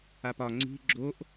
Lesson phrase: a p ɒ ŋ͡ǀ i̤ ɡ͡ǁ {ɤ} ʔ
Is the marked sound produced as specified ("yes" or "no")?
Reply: no